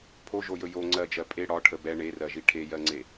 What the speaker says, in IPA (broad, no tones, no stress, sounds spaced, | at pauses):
pʰ o ʒ o j ɵ j o ŋ͡ǀ ɜ d͡ʒ ɜ pʼ e ɽ ɒ ʈʰ ə b ɛ ɳ e r ɜ ʒ i ʈʰ e j ɜ ŋ͡ǀ e